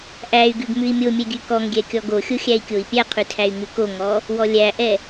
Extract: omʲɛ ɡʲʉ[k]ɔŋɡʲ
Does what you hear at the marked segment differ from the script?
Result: no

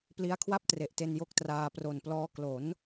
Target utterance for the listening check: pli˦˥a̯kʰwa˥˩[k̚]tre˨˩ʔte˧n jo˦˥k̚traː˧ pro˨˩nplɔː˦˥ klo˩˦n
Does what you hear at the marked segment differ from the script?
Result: yes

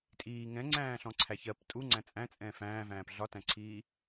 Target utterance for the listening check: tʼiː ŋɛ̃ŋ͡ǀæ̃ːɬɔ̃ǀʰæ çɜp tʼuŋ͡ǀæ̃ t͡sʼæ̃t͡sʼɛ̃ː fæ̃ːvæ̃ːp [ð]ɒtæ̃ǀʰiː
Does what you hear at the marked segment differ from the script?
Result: yes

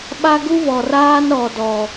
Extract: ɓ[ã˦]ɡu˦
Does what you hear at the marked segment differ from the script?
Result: yes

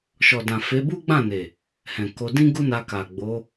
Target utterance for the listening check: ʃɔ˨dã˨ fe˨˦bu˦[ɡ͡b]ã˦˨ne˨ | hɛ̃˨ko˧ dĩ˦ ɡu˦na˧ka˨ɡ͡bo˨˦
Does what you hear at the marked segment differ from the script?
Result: no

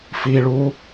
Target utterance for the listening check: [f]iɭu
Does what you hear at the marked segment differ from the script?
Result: no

